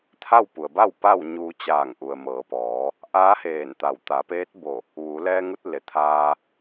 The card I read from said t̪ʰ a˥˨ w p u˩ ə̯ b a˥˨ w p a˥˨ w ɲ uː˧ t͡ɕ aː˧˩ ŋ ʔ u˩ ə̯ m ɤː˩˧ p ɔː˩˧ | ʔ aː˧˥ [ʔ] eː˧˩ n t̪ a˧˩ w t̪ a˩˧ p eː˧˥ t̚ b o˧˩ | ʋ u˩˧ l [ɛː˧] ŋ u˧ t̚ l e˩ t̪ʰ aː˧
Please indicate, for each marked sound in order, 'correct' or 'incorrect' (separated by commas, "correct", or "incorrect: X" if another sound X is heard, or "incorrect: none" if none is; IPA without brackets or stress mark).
incorrect: h, correct